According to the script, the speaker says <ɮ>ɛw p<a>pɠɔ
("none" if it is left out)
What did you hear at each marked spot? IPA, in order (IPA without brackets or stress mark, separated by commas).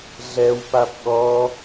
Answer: ɮ, a